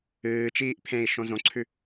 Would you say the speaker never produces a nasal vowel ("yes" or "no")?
no